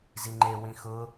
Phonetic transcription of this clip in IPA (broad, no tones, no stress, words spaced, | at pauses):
ziŋ͡ǃe wĩxʊ